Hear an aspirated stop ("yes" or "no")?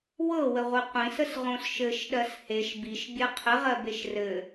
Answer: yes